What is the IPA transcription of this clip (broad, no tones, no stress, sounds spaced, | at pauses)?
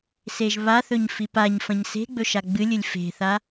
s e ʒ β a θ ɵ ɲ f i p a ɲ f ɐ̃ ɲ s e̤ ɡ͡b ɵ ʃ a ɡ͡b ɨ lʲ ɨ lʲ f e̤ θ a